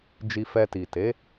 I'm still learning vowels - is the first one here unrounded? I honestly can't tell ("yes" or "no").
yes